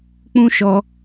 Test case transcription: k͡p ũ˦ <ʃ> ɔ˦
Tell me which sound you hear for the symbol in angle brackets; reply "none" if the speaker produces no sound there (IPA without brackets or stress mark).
ʃ